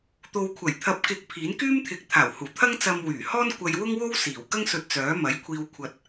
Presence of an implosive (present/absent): absent